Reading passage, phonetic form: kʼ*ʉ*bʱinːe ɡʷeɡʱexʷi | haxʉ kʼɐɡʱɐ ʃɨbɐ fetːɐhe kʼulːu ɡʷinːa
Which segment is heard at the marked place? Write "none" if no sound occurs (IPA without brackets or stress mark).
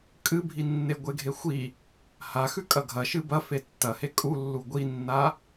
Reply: ɨ